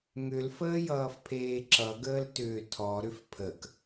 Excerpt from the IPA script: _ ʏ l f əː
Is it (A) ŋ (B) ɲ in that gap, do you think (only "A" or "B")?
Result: A